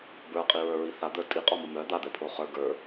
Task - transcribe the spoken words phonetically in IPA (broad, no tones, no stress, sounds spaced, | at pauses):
b ə˞ qʼ i ɹ ə˞ ɹ i θ a d̪ ə˞ tʼ i qʼ ɔ m ʊ m œ d̪ a d̪ ɛ pʰ o χ ə˞ ɡ ə˞